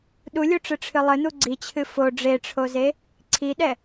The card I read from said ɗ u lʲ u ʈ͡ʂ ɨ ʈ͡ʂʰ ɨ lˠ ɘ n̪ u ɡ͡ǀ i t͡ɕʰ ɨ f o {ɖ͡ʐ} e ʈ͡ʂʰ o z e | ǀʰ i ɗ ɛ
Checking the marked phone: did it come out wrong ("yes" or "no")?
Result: no